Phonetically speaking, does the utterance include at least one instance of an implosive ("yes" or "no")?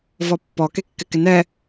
no